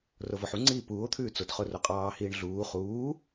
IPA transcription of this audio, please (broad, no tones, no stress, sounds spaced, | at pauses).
r o v ɔ ħ u ŋ͡ǀ iː p uː o̯ t̪ʰ ʉː t͡s o t χ o r o qʼ ɑː h iː ɳ ɮ uː χ uː